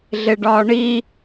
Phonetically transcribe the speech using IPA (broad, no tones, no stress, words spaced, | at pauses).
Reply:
ɮeɖɒːɳi